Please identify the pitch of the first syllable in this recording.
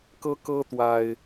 high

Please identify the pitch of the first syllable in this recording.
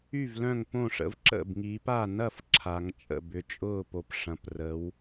falling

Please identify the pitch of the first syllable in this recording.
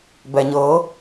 low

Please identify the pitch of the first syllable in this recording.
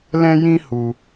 high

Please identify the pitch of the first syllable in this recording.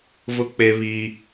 high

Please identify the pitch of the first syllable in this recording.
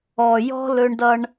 low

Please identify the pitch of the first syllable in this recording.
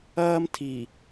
high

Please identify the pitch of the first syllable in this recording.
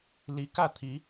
rising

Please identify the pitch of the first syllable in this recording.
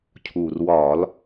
low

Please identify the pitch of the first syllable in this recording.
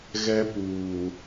high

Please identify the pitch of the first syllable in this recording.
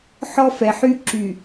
high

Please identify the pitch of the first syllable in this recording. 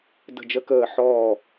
falling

